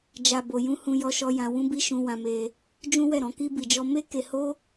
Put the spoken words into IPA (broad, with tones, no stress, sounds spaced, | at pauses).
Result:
d͡ʒ a˧ b o˧ j ũ˧ h ũ˧ j ɔ˧ ʃ ɔ˧ j ã˧ w ũ˦ b i˦ ʃ ũ˧ w ã˧ m e˧ | d͡ʒ ũ˦ w ɛ˦˨ ɾ ɔ̃˧ k i˧ b i˨ d͡ʒ ɔ˧ m e˦ k e˧ h o˦